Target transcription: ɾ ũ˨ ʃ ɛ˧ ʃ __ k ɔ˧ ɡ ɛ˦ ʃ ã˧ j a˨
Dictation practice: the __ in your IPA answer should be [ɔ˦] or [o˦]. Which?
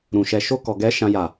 o˦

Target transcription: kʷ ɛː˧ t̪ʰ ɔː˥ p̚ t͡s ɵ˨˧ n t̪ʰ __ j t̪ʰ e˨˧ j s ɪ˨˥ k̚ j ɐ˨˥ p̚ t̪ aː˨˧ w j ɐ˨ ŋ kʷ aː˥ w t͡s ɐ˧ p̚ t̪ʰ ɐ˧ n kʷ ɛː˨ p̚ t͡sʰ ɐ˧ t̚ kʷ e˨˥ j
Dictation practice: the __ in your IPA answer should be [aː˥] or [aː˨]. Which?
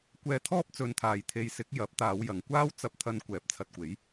aː˨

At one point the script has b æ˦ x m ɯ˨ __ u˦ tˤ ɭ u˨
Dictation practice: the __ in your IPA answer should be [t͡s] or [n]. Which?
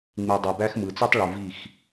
t͡s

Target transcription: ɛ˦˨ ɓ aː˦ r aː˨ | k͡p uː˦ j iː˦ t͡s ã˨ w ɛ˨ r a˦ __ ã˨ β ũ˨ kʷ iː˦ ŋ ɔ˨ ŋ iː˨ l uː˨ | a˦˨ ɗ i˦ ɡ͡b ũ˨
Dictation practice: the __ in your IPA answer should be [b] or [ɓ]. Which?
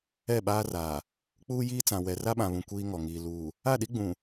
ɓ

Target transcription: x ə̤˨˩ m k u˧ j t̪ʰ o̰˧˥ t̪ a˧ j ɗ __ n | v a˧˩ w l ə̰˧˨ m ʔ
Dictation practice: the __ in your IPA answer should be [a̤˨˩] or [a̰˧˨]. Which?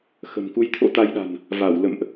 a̤˨˩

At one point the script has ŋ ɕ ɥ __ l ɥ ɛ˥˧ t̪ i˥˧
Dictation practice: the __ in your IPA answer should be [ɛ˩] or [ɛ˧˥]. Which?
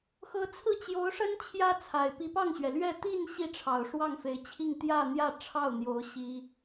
ɛ˩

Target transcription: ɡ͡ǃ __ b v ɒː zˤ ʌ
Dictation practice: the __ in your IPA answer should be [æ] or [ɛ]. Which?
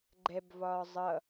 ɛ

